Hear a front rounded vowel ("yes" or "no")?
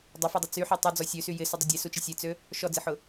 yes